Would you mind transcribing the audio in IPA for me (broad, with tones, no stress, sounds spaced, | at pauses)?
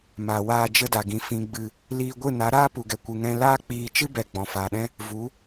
m a˨ w aː˧ d͡ʒ ə˧ d a˨ ɡ ĩ˨ f ĩ˨ ɡ͡b ɨ˨ | l iː˧ ɡʷ ɨ˦˨ n a˨˦ ɾ aː˦ p u˨ ɡ ɛ˨ kʷ ɨ˨ ŋ ɛ̃˧ l aː˦ k͡p iː˧ t͡ʃ ɨ˦ b ɛ˨ ɡ͡b ɔ̃˨ f aː˨ ɗ ɛ̃˦ | v u˨˦